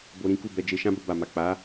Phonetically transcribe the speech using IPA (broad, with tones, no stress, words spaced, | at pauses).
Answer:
bo˧ɾĩ˦ ku˦˨bɛ˧d͡ʒe˧ ʃã˦ bo˧ba˨ma˨ k͡pa˨˦